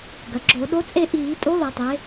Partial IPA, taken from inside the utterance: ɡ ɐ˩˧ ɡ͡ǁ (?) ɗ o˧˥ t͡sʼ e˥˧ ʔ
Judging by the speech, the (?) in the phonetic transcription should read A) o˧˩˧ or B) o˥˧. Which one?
A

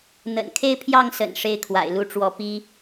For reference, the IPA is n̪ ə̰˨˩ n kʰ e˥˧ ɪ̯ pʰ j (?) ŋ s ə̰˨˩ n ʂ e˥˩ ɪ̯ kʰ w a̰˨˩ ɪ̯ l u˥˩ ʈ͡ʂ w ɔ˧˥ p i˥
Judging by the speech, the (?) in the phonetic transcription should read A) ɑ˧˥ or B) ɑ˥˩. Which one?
B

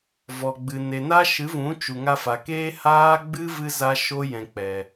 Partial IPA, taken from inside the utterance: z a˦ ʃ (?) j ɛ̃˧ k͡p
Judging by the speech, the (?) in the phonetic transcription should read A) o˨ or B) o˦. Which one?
B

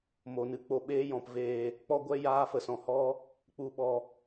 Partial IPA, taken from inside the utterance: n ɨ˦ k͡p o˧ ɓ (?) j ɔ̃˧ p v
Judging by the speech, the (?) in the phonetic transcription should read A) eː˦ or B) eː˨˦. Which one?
A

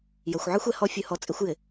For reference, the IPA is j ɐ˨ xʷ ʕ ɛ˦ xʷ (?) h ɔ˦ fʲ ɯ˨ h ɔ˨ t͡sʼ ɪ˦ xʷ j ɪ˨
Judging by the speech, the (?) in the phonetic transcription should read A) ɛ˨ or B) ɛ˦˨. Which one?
A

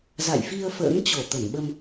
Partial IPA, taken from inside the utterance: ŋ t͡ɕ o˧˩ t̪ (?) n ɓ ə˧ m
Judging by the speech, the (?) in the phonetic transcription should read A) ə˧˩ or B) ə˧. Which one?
A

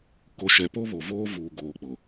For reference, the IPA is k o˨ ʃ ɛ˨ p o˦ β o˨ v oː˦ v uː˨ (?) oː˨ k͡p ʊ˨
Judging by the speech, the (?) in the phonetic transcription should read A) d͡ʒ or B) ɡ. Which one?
B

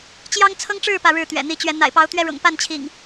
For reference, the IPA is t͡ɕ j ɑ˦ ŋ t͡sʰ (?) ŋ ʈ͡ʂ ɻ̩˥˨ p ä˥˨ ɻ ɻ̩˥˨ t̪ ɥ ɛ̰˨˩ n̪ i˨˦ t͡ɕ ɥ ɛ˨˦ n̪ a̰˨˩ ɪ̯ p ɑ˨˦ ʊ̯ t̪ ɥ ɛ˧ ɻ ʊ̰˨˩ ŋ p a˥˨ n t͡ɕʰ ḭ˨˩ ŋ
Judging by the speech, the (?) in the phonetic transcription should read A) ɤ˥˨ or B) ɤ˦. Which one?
B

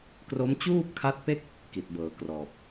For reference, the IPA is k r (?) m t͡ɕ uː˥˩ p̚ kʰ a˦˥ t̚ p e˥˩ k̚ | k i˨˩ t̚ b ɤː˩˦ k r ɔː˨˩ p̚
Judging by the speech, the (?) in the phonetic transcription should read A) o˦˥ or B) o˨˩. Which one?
A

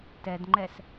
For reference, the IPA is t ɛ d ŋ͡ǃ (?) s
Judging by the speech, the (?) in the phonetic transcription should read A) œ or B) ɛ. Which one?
B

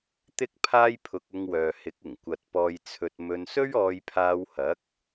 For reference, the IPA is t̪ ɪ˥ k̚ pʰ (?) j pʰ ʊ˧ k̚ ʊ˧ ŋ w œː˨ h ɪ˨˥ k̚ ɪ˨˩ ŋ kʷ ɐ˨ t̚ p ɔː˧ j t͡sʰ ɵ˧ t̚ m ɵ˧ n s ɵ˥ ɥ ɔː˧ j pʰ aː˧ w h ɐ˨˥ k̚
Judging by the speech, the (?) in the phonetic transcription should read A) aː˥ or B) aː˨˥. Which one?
A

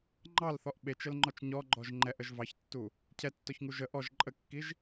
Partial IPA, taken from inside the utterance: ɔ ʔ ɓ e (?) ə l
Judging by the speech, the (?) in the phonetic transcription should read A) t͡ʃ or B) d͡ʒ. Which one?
A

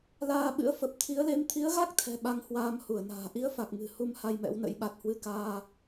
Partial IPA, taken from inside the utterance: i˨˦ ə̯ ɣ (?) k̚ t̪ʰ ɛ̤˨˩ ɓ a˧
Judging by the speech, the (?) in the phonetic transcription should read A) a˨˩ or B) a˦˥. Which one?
B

